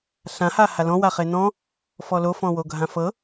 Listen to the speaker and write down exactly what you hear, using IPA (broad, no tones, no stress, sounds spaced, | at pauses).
ɬ ã h a h a l ɔ̃ w a χ e n ɔ̃ | f ɔ l o f ɔ̃ w o ɡʱ ã f ɤ